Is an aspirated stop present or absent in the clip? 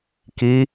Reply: absent